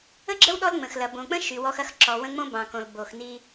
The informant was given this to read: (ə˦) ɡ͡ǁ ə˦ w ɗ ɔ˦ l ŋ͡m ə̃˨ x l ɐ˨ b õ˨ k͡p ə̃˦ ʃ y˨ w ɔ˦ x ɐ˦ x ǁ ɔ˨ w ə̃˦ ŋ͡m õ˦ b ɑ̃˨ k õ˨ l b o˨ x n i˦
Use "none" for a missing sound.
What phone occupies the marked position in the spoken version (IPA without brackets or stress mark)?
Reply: ə˦